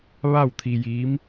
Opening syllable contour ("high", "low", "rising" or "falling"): falling